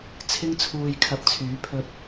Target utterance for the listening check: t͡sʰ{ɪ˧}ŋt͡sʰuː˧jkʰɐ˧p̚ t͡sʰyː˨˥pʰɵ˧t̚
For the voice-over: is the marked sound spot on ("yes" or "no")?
no